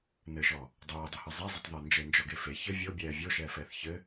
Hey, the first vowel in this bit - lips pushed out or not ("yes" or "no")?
no